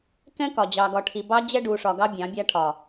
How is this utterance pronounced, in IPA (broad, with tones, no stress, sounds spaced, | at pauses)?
k ɛ̃˦ k ɒ˨ d͡ʑ ɑ˨ ɡ ɒ˨ ʈʰ i˨ b ɑ˦ d͡ʑ ɛ˦ ɖ u˨ ʂ ɒ˨ ɡ ɑ˦ bʲ ɑ̃˨˦ bʲ a˦ ʈʰ ɒ˨